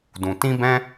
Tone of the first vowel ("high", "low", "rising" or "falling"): low